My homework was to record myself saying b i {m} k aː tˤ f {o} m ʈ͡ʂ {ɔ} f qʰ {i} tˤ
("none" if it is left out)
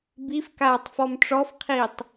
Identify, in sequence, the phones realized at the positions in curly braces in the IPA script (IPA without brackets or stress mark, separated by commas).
f, ɔ, ɔ, iː